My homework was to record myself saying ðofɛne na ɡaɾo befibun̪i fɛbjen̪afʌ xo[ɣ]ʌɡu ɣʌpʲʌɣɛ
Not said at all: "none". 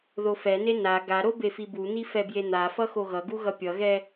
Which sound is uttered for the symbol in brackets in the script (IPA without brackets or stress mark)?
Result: ɣ